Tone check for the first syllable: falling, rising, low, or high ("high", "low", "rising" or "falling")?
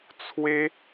high